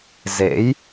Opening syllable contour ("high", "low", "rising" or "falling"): rising